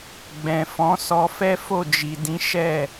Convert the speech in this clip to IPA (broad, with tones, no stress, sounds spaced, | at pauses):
ɡ͡b ɛ̃˨ f ɔ̃˨˦ s ɔ˧ f ɛ˦ f o˦˨ d͡ʒ i˨ d ĩ˨˦ ʃ ɛ˦˨